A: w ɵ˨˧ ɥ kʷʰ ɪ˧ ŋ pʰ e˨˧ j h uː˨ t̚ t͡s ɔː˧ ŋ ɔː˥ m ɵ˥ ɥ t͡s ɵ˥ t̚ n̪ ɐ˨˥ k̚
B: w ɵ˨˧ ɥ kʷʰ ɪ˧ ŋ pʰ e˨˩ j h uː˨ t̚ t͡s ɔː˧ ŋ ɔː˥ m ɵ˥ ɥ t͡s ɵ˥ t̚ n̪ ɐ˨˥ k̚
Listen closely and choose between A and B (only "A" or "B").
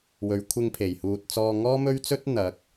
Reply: B